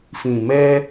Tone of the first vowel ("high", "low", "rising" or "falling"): low